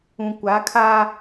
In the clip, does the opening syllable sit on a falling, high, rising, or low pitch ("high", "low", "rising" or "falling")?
low